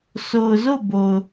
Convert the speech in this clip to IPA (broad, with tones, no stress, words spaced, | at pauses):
so˨ʊ̯zo˦˨ bo˨ʊ̯